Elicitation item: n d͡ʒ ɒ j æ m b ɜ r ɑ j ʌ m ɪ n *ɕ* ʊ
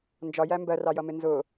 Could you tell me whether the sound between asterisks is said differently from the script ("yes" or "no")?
yes